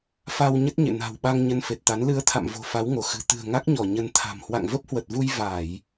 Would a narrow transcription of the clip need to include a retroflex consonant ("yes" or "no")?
no